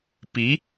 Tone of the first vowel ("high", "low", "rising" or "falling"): rising